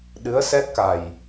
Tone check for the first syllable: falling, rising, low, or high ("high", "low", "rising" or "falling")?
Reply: rising